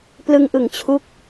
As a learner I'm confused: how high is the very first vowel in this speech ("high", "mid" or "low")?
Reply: high